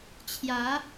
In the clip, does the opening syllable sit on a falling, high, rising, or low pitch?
rising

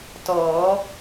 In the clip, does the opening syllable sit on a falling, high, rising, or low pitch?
rising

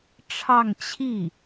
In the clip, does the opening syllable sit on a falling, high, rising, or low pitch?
falling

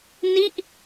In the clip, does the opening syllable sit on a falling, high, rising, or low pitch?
falling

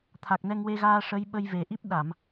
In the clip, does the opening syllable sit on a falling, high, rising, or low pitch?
low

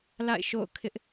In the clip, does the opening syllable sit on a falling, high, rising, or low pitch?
falling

